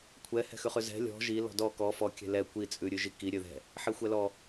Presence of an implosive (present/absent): absent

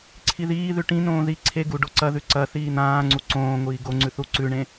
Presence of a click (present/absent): present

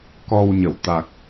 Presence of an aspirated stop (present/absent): absent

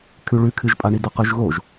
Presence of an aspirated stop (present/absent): present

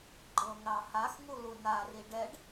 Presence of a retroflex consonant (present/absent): present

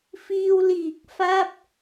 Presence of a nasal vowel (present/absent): absent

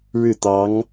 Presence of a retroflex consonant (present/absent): present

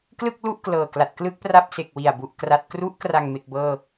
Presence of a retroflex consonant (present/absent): absent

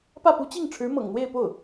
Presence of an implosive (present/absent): absent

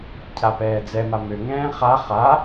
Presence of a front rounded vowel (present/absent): present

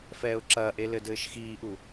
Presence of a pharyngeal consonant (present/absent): absent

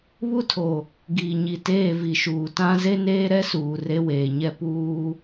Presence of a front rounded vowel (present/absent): absent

